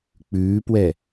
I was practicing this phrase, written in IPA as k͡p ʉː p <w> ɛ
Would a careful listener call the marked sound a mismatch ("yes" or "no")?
no